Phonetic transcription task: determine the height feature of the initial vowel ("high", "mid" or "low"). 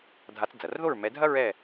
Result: low